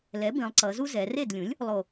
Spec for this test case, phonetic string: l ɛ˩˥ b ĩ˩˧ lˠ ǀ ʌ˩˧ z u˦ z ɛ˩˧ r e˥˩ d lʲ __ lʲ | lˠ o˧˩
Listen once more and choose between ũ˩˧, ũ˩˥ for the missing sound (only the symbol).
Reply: ũ˩˥